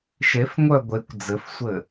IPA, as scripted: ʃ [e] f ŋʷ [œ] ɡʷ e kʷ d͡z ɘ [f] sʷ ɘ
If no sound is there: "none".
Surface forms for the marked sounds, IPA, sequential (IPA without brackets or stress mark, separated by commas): e, œ, f